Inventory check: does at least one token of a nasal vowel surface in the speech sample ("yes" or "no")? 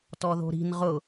no